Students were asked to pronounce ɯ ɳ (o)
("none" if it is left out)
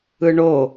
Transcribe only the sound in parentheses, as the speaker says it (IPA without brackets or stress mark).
o